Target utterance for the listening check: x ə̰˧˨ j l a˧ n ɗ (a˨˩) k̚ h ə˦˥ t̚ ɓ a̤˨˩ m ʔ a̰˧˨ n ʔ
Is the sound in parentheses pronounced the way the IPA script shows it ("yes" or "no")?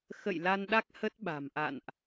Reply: no